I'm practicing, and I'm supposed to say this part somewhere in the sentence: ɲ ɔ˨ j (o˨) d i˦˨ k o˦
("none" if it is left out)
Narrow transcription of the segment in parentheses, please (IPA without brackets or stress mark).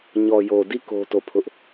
o˨